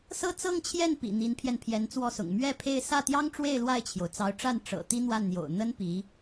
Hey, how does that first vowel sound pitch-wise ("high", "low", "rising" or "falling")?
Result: falling